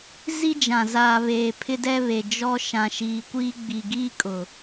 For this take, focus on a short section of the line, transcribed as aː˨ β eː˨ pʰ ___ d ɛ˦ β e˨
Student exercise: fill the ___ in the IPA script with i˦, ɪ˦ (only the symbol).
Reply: ɪ˦